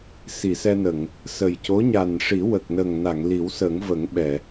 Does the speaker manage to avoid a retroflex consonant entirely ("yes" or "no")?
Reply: no